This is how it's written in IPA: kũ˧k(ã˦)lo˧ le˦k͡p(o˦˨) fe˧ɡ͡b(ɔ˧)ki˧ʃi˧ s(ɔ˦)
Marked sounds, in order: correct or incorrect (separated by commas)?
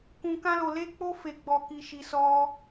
correct, incorrect, correct, correct